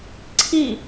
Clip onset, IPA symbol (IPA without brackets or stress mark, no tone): ǀʰ